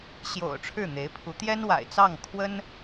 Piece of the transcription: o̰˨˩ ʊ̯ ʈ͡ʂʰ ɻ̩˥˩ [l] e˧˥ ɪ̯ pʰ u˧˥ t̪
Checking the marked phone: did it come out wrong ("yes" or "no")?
yes